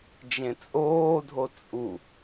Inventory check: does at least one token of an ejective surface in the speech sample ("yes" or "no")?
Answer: yes